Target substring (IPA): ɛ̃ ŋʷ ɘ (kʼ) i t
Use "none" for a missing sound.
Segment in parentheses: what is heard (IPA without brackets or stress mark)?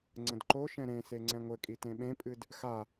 kʼ